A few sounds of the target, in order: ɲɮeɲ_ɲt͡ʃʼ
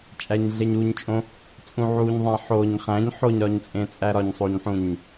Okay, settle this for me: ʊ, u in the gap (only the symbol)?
u